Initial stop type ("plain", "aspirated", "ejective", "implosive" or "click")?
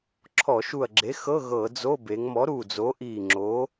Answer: click